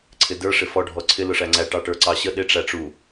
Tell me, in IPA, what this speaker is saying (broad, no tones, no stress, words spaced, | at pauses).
ǀʰɪdə˞ ʂɪfɔ ɖʱɔǀʰɪ lʊʂæŋ͡ǀæ ʈɑʈə˞ǀɑɕə ɗɪ ʈ͡ʂæʈ͡ʂu